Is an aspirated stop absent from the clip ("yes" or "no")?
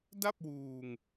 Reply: yes